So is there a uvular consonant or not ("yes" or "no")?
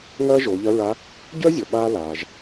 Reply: no